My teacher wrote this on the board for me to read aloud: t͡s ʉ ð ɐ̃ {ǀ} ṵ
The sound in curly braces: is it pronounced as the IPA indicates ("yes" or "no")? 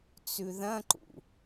no